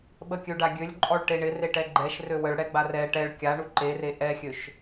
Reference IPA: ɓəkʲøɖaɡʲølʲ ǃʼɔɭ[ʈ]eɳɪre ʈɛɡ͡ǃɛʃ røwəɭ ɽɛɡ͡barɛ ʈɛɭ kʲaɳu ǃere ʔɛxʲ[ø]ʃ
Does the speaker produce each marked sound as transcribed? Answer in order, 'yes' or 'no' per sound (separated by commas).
yes, yes